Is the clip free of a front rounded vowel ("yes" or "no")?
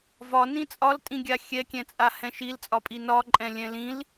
yes